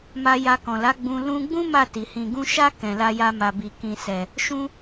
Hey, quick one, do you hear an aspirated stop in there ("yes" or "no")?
no